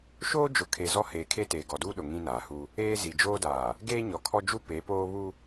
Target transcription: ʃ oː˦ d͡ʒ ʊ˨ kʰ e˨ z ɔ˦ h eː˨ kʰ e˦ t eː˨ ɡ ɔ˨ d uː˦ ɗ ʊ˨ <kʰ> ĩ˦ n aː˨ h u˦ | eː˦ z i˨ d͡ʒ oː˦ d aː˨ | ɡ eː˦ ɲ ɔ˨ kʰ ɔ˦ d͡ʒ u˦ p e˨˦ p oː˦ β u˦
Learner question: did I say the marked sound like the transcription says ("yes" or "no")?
no